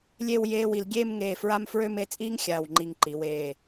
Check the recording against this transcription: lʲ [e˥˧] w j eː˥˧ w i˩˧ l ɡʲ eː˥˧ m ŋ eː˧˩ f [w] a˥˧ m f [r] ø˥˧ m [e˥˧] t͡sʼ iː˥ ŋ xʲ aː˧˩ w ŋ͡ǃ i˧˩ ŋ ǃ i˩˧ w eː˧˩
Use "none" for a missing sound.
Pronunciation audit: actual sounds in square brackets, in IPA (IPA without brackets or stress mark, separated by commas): e˥˧, ɹ, ɹ, e˥˧